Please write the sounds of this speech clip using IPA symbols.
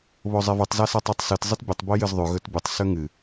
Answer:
β o zˤ e v ʉ tˤ z a s a tˤ ɵ tˤ s ɨ t zˤ ɨ t bʲ ɨ tˤ b o j ɨ z ðˤ ʉ ɣ ɵ t bʲ ʉ tˤ s ɵ ŋ ɨ

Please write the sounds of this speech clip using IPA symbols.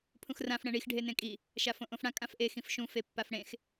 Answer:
pʰ ũ x r ã f ɽ ɛ̃ ɳ i x ɖʱ e n ẽ kʼ i | ʃ a f õ ʔ õ f ɽ ã kʼ ã f ʔ e x ĩ f ʃ ũ f e pː a f ɽ ẽ x

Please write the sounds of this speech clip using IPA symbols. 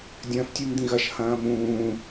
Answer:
dʲ ɐ̃ː f tʲ ʉ m d̪ ĩ ɣ ɐ ʃ h ɐ̃ː m ũː

